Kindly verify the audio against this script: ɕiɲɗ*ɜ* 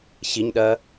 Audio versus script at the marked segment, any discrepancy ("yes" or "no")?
no